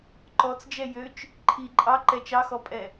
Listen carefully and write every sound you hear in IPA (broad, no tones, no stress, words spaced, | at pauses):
ǃɔt͡sd͡ʒɛ jøt͡ʃ | ǃʰi ǃʼɑ ǃɛt͡ʃɑxɔpʼɛ